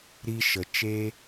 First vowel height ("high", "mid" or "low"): high